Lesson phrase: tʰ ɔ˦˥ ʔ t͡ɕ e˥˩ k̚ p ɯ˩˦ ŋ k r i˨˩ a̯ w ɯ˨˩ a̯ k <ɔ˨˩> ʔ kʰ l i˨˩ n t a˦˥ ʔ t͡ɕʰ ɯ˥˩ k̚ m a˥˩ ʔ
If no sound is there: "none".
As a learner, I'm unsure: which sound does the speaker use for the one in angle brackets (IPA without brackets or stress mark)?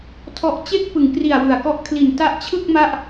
ɔ˥˩